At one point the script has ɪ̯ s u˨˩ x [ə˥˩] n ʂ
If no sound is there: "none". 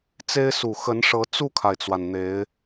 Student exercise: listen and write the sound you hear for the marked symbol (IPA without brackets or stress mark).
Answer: ə˧˥